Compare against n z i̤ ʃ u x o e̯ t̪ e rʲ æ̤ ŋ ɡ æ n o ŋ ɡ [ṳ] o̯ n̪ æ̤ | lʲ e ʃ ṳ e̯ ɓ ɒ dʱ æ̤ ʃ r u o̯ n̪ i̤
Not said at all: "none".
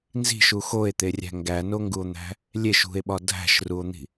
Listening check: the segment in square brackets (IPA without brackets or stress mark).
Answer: u